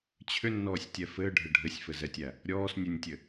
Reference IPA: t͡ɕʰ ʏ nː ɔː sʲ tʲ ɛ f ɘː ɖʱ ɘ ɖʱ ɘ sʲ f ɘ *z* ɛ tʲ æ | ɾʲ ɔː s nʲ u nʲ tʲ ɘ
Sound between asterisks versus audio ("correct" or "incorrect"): correct